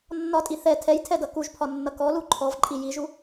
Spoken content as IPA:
nː ɒ tʼ i θ ɛ tʰ ɛ j tʰ ɛ d ʌ k u ʒ pʰ ɒ nː ʌ k ɔ l u ǃʰ ɔ v ǃʼ i j i ʒ u

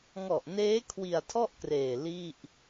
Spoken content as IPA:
ŋ ɔ˨˩ ʔ n eː˦˥ kʰ w i˨˩ a̯ tʰ ɔ˥˩ ʔ k r eː˨˩ l i˥˩ ʔ

